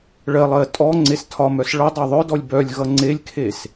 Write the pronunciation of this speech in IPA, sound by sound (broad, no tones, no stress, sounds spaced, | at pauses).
ɭ ɜ lˠ ɜ tʼ ɔ ŋ͡ǀ e s tʰ ɒ m œ s ɭ ʌ dˤ œ ðˤ œ d ɔ lʲ b œ lʲ ɣ ʌ ŋ͡ǀ e lʲ kʰ e s